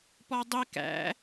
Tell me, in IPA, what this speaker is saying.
p ɔ dˤ i k æ̰

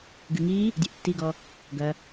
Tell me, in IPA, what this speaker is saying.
ɡ ɨ ŋ i | dʲ e ʔ tː i ɡ ɔ | ɡ ɐ

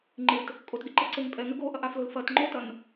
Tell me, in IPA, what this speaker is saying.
ŋ͡ǃ ɪ t | kʼ o t ɡ ɪ ǃ e ǀ e ŋ pʼ ɛ ŋ ʏ ɡ o ʔ ɐ ʔ a f l o l f ɐ t ŋ͡ǃ o t ɐ n

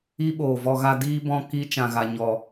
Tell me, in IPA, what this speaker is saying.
i˦ ɓ oː˨ v ɔ˧ ɣ a˧ d iː˦ b ɔ̃˧ k i˧ t͡ʃ ã˨ ɣ a˨ ɲ ɔ˨

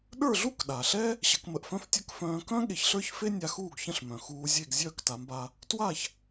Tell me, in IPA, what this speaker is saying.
ɗ ə˞˥˩ ɮ u˥ k ɗ a˩ ɬ ɛ˥ | ɕ ə˩˥ k m ə˧ ʔ f œ̃˥ f tʲ ə˞˥ k f œ̃ː˧ k œ̃˥ ɠ e˧ ç ɬ ə˞˥ ç f e˥ nʲ a˧ x uː˥˩ ɡ ç ə̃˥˩ ɬ m œ̃˩ x uː˧ zʲ e˥˩ ɡ zʲ œː˥˩ k t a˩˥ m b a˧ | t w a˥˩ ç

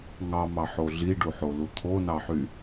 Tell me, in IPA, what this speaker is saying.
ŋ ɑ m ɑ ħ o ɮ i ɖ u ħ o l u t̪ʰ o n ɑ ħ y

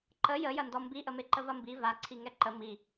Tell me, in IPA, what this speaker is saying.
ǃ ə j ə j ɐ n d ɔ m b i ʔ ə m e ǃ ə v ɐ m b i v a ǀʰ i ŋ ɛ ǃ ə m i

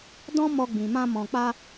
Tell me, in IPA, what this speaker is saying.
d ɔ̃˦ m ɔ˧ ɡ͡b ĩ˨ m ã˧ m ɔ̃˨ k͡p a˧

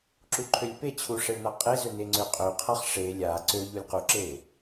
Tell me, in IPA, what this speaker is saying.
ǁ u ǃʰ ø lʲ p e t͡ɕʰ u ʂ e ɭ n a qʼ e z ø n e ŋ͡ǀ ø qʼ ø qʰ a χ ʂ e lʲ a ǀ ø ʎ u lʲ q u ǁ e

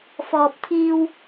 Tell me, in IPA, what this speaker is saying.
f ɔː˨ p̚ t̪ʰ iː˧ w

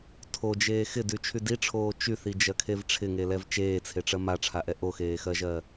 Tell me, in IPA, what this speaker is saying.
tʰ o d͡ʒ eː x ɪ d y t͡ʃʰ y d i ʈ͡ʂʰ oː t͡ʃ y θ i d͡ʒ ɜ kʰ e v ʈ͡ʂʰ ɪ ŋ e l ɛ v t͡ʃ eː t͡sʰ e ʈ͡ʂ ɜ m a ʈ͡ʂʰ a ʔ ɛ ʔ o x eː x ɜ ʒ ɜ

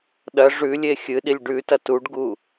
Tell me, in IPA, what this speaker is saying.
ɗ ɐ ʐ ʉ lʲ e xʲ ɨ ɗ i lʲ ɖ ʉ t ɐ t u ɖ ɡ u

